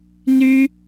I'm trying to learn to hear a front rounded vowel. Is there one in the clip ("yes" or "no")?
yes